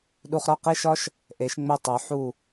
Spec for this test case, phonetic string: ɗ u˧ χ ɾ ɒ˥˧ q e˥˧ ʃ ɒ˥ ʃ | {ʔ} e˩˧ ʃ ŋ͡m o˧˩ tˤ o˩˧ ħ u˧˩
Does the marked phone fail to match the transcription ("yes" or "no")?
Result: no